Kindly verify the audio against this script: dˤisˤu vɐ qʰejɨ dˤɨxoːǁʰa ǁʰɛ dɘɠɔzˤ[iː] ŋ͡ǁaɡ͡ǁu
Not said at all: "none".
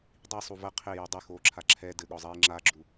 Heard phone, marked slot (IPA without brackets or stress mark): iː